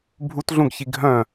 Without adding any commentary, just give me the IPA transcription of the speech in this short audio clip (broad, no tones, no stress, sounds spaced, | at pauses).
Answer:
bʱ u t ɮ ũ ɡ ç i ɡʱ œ̃